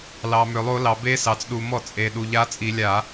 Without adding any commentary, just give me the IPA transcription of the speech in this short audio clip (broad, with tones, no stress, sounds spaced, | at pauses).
l ɑ˩ m ø˩ lˠ o˧˩˧ l ɑ˩ b e˧˥ s ɑ˩ t͡s ɗ u˩ m ɔ˧˩˧ t͡sʼ e˩ ɗ u˩ ʎ a˧˥ t͡sʼ i˧˩˧ lʲ a˧˩˧